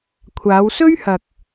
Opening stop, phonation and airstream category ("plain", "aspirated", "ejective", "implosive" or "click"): aspirated